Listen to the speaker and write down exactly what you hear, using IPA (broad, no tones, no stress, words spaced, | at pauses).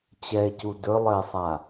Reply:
t͡ɕɛe̯cu dɵlˠɘe̯sˤa